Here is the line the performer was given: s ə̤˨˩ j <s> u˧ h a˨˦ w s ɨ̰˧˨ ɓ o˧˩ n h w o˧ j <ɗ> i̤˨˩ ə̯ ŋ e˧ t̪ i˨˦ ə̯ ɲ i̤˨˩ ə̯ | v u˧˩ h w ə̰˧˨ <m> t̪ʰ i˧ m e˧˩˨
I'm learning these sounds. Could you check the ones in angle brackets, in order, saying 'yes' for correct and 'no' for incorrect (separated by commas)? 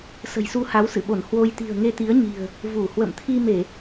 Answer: yes, no, yes